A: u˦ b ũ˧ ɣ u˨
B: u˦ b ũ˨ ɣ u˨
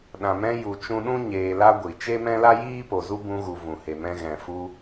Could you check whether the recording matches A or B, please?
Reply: A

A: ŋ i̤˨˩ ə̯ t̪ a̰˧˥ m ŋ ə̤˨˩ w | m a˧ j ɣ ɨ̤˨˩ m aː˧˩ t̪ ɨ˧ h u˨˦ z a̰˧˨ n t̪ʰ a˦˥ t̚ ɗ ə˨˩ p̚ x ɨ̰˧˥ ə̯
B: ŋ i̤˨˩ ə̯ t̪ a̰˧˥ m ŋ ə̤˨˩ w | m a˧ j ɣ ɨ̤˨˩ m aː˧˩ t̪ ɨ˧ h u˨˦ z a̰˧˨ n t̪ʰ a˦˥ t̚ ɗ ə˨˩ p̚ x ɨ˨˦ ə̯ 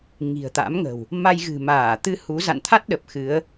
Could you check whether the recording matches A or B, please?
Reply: B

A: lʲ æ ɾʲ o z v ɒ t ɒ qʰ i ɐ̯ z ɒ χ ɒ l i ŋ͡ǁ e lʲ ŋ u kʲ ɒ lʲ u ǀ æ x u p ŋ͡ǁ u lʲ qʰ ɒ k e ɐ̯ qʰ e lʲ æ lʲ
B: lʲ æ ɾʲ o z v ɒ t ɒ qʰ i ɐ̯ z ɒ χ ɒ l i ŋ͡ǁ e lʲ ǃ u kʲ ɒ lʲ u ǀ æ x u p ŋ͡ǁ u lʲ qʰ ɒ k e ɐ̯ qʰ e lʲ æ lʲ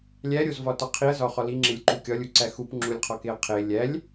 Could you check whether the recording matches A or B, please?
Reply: B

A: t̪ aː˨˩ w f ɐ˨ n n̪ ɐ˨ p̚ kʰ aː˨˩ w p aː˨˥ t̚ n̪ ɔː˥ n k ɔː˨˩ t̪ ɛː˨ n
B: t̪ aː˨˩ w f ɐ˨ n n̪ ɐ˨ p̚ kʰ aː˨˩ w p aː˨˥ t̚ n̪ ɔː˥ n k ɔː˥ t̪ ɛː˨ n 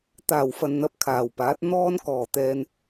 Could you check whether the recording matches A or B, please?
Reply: A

